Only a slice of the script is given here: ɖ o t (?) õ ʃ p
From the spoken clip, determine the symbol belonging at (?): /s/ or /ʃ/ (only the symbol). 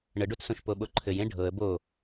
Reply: s